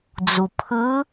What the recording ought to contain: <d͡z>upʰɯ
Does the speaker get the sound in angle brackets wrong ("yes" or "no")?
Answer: no